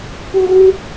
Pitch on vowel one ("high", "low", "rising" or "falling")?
high